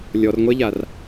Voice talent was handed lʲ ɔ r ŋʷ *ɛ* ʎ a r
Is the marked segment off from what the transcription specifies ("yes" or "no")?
no